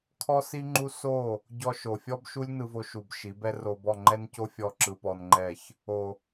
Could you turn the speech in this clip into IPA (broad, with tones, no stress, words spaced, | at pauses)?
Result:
kʰɔ˦si˦ŋ͡ǃu˦ so˦˨ | ɟɔ˧ʃo˨fʲɔ˦bʃu˦lʲ nɯ˧vo˧ ʃu˨b ʃi˨˦bɛ˦ro˧bɔ˦˨ ŋ͡ǃɛ˦nco˦ fʲɔ˦ǁɯ˧pɔ˧nŋ͡ǃɛ˦˨ç | o˨